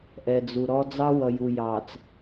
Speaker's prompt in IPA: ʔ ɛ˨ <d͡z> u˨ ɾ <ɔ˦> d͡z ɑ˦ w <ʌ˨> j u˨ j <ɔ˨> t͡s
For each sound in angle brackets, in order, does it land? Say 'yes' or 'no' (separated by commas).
yes, yes, yes, no